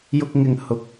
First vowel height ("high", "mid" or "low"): high